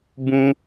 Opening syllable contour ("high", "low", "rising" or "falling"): high